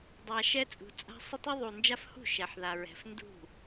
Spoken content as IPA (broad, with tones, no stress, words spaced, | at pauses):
dˤa˨ ʃɛ˦t͡sʼṳ˨t͡sʼa̤˦ sˤɪ˦tˤu˦ ðˤu˨nd͡ʒa˦fhṳ˥˩ ʃɛ˨ħða˨ɹɛ̤˨f ndṳ˥˩